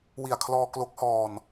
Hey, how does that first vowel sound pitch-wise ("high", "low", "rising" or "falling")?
low